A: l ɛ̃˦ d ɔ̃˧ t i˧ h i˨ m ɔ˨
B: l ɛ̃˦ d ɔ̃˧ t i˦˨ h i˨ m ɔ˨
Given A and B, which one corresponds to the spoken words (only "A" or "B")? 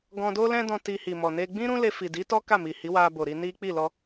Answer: A